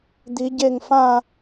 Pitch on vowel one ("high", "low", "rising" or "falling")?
rising